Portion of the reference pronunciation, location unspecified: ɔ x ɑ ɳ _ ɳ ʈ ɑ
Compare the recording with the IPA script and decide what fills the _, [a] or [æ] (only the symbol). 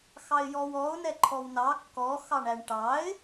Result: æ